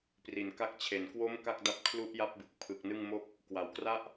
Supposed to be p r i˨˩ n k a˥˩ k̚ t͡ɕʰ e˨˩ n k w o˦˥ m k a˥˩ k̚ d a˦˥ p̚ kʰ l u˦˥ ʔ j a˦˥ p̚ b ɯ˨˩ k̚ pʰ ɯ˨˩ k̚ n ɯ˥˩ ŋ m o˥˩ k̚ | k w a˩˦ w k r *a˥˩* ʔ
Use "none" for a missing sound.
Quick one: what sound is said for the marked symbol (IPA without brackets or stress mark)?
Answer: a˥˩